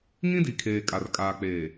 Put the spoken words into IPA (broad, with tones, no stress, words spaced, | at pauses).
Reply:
ŋĩ˦di˨kʰeː˨ kʼa˨rkʼaː˨k͡peː˨